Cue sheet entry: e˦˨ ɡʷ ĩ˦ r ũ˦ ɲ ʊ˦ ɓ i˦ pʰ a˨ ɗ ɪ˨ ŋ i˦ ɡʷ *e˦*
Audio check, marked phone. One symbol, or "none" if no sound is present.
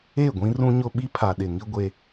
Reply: e˦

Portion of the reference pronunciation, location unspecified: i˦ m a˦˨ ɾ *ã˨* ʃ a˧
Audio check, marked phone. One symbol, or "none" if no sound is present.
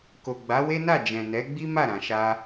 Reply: ã˨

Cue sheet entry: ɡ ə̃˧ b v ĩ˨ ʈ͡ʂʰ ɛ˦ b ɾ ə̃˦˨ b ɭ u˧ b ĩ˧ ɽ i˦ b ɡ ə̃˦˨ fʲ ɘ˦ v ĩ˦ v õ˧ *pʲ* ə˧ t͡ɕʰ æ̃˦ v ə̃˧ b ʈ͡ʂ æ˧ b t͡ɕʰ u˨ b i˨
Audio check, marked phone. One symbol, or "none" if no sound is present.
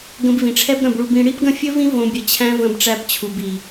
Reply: bʲ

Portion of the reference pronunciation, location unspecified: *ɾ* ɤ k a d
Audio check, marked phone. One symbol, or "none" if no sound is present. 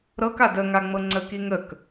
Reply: ɾ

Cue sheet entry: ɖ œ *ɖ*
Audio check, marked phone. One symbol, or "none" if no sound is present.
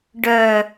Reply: none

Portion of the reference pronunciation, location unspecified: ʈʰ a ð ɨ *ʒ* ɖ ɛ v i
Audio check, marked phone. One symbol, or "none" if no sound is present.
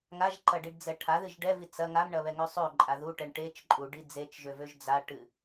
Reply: ʒ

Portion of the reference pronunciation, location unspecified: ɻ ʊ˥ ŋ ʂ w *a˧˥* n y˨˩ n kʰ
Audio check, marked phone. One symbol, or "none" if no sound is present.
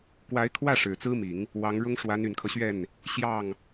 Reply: a˧˥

